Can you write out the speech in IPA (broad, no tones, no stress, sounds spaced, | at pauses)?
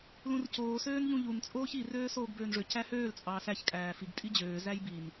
l ũ r c oː s øː n ʎ ũ ʎ u n t͡sʼ oː ç i r øː s oː ɡ b øː n ʐ ø c æ h øː l t͡sʼ ɑː s æ ç kʼ æː f i ɡ tʼ i d͡ʑ øː z æ j b i n